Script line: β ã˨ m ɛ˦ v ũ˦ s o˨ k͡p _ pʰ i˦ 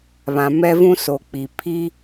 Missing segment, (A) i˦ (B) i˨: B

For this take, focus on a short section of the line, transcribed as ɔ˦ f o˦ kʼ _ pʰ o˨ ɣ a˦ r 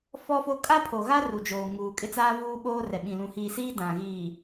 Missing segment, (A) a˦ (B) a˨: A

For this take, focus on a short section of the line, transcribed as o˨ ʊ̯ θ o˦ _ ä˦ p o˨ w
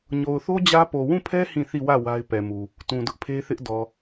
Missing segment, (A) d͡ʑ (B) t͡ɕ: A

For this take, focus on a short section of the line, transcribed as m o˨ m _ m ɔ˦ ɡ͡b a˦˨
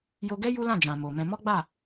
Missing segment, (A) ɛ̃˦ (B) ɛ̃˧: B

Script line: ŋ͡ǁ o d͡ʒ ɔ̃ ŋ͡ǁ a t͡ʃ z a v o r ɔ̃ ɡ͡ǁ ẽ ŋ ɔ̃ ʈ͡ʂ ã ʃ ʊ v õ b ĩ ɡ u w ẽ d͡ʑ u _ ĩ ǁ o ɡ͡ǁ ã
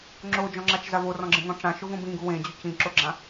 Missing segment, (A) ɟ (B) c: B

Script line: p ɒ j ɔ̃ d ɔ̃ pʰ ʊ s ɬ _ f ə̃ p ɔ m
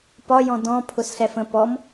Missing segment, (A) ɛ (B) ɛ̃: A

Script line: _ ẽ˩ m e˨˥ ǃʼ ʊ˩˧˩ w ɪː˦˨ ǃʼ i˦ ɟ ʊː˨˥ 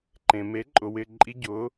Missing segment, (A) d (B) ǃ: B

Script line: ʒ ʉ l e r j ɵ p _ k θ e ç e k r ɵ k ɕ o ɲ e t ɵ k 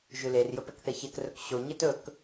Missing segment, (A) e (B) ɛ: B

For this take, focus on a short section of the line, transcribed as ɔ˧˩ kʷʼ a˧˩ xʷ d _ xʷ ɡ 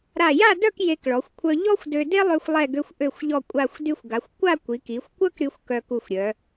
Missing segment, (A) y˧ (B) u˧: A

